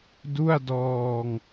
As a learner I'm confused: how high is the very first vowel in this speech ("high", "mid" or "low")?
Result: high